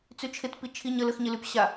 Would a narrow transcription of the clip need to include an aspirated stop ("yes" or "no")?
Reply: yes